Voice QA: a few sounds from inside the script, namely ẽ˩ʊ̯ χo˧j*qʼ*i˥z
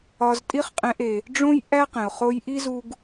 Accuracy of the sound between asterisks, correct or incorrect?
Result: incorrect